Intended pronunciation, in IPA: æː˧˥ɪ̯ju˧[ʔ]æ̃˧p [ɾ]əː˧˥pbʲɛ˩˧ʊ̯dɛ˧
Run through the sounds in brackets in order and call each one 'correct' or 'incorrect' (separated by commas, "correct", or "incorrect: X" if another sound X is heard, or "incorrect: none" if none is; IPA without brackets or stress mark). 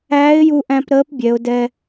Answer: correct, correct